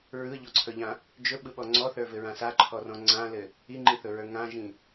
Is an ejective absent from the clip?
yes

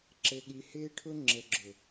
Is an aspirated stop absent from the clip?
no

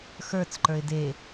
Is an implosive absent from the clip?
yes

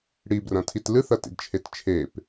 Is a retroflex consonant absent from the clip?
no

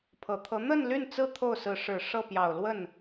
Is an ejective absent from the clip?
yes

